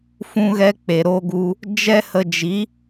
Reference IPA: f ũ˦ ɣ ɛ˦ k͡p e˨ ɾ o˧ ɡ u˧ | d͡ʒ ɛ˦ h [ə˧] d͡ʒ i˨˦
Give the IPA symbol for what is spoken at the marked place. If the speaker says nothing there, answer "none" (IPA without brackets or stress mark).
ə˧